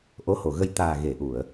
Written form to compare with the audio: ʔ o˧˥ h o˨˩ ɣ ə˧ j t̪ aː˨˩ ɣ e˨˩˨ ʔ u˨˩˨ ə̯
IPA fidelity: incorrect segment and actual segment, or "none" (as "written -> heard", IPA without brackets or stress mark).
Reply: none